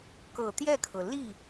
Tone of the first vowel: low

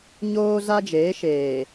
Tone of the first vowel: high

